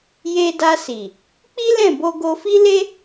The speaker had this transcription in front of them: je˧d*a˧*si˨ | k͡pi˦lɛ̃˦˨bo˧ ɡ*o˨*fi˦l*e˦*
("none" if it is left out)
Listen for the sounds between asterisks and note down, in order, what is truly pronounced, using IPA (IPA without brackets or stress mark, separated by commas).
a˧, o˧, e˦